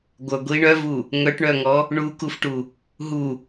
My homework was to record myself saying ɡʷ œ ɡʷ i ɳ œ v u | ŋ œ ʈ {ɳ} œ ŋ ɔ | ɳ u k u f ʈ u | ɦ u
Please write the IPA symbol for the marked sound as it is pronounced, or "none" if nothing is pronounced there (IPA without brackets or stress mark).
ɳ